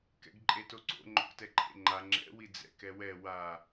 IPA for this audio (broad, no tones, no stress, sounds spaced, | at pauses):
k ɛ̰ ɡ ǃʼ e t o ǀ o̰ ŋ͡ǃ o̰ k t ɛ ǃʰ ḛ ŋ͡ǃ a ŋ͡ǁ ɛ̰ w i d͡z ɛ̰ k ɛ w ɛ w a